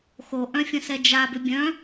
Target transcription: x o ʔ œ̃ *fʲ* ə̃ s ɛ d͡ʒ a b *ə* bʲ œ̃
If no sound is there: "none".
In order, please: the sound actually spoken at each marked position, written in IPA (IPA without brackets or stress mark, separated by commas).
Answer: fʲ, ʏ